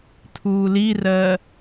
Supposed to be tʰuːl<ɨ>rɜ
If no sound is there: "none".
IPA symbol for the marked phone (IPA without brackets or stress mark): i